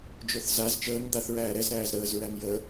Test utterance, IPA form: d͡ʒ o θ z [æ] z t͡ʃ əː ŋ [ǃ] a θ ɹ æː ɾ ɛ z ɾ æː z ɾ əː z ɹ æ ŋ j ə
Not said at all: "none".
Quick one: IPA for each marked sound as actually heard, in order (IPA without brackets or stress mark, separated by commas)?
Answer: a, d̪